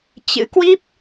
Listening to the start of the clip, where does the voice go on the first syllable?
rising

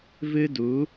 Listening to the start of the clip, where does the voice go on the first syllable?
high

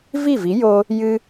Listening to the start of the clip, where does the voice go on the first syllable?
falling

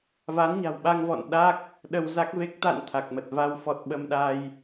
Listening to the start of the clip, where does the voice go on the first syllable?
rising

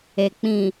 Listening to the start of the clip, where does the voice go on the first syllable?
low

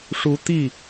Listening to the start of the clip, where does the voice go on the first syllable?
rising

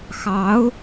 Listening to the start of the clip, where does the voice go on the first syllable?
rising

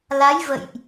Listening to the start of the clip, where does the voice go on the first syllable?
rising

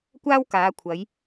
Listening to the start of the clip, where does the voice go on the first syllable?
high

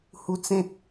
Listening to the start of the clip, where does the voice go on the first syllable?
high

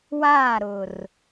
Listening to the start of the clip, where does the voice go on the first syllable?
falling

